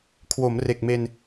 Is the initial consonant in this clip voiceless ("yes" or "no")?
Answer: yes